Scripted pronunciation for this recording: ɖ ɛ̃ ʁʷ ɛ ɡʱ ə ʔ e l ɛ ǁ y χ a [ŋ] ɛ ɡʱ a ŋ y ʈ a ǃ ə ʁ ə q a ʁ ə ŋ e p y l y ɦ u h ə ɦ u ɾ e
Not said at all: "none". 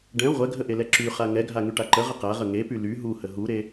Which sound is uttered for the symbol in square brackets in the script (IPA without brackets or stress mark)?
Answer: ŋ